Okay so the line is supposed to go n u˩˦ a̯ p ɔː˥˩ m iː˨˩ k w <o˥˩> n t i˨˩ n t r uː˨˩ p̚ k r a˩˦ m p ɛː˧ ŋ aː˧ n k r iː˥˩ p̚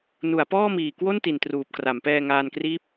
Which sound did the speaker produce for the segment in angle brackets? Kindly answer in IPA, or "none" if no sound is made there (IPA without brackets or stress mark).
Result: o˥˩